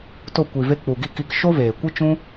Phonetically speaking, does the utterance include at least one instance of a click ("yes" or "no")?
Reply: no